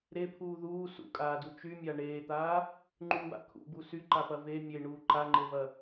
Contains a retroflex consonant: yes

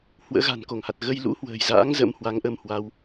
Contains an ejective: no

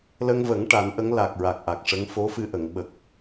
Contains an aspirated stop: no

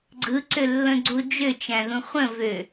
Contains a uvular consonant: yes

